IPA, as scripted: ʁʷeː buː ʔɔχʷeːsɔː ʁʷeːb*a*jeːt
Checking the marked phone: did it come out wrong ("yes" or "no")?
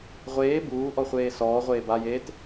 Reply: no